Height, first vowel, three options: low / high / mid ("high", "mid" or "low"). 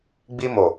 high